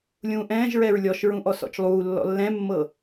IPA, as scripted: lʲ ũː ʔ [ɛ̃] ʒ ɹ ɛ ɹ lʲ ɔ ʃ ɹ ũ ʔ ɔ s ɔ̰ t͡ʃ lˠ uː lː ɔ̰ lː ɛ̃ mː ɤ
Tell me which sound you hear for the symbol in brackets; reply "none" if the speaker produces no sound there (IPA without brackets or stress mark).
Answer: ɛ̃ː